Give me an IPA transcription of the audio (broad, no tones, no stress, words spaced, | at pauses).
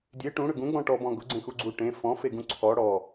dʲe ʈũɽʏ ɡũɡ͡bɔ̃ ʈɔbɔ̃ ɡʊɡ͡ǀẽxuɡ͡ǀu ʈẽ fɔ̃feɡũ ǀʰɔ ɽɔ